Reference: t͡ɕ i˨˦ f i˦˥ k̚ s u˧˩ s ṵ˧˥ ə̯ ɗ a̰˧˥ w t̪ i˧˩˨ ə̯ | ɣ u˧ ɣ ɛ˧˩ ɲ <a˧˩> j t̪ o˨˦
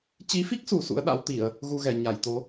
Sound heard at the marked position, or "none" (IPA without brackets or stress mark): a˧˩